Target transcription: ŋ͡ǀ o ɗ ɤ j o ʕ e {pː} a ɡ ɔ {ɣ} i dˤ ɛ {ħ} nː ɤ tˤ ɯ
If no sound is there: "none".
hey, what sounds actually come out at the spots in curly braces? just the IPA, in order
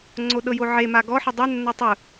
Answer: m, ħ, none

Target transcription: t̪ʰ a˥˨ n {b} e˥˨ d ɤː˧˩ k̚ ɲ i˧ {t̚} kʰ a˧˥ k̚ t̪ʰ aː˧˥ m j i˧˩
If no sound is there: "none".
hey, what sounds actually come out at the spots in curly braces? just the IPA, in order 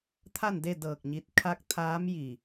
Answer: d, t̚

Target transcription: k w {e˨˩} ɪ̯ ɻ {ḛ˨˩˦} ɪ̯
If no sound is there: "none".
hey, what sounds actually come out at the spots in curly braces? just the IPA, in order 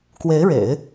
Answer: e˧˥, ḛ˨˩˦

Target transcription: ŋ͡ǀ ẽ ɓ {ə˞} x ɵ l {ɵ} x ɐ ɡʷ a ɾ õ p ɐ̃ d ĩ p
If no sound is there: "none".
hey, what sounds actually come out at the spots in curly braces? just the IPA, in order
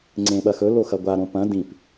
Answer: ɐ, o

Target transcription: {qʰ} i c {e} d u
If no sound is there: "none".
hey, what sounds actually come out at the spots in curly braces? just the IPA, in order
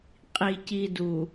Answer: qʼ, i

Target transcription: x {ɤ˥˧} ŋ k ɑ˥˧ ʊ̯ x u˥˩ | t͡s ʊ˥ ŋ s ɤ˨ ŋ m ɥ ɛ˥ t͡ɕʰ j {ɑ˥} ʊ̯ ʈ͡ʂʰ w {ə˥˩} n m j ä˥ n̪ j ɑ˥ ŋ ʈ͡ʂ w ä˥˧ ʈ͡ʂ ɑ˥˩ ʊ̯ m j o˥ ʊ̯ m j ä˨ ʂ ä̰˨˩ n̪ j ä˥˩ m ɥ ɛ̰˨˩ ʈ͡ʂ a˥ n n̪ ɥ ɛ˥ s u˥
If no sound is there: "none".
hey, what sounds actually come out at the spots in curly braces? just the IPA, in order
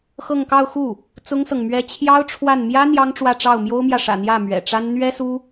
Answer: ɤ˥˧, ɑ˥, a˥˩

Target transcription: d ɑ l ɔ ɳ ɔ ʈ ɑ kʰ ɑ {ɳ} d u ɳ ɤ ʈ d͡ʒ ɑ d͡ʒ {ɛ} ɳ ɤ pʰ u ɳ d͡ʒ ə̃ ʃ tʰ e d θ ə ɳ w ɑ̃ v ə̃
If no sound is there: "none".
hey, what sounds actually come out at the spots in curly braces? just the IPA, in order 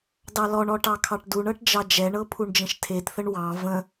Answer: ʈ, ɛ

